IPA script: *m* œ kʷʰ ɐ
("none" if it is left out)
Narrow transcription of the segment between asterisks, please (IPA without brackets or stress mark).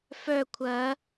f